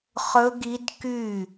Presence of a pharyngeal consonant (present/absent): absent